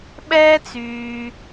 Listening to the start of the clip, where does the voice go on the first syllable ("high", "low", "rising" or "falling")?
high